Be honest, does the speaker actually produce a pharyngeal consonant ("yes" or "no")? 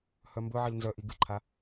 yes